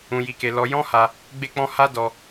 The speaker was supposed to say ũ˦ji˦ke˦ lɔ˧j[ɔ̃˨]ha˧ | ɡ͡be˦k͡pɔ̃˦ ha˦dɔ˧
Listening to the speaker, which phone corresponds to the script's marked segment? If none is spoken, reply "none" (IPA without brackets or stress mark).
ɔ̃˦